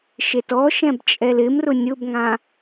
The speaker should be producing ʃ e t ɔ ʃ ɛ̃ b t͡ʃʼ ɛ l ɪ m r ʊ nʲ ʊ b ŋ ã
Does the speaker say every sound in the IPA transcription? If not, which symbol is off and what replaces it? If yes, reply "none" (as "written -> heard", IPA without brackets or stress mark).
none